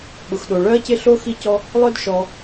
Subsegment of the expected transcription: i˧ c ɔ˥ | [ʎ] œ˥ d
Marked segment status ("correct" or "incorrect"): incorrect